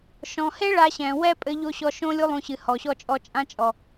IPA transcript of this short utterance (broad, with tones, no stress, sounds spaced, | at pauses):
ʃ ɔ̃˨ h e˦ ɭ a˧ ɕ ɛ̃˨ w ɛ˦ pʼ ɘ˧ ʎ o˧ ɕ ɔ˧ ʃ õ˦ lʲ u˦ lˠ ũ˧ ɕ ɨ˨ h ɔ˨ ɕ ɔ˧ t͡ʃʼ ɔ˧ t͡ʃʼ ã˦ t͡ʃʼ ɔ˨